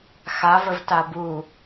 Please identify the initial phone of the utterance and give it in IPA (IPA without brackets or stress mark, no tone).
x